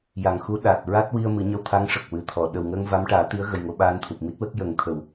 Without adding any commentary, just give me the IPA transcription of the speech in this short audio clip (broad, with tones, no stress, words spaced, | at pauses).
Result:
ja˨˩ŋxu˧˥ ɗa˨˩t̚ɹa˦˥t̚wi˧ə̯ mɨ˨˩˦ɲə˧wt̪ʰa˧˥ŋ ʂə˨˩k̚wɨ˨˩t̪ʰɔ˨˩˨ ɗə˨˩wŋəː˧ŋ va˧˥mʈaː˨˩˦t̪i˧˥ə̯ɣə˨˩j ŋo˧ɓaː˧nt̪ʰu˨˩p̚ mi˦˥t̚wə˦˥k̚jə˨˩˦ŋt̪ʰə˨˩˨w